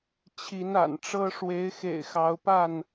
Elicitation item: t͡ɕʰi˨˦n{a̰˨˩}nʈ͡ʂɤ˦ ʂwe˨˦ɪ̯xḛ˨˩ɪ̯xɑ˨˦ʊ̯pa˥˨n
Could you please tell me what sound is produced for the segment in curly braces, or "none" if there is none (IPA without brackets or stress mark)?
a̰˨˩